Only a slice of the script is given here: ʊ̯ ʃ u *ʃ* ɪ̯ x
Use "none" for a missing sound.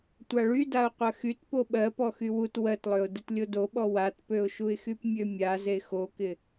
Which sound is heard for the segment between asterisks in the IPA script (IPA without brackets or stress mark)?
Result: none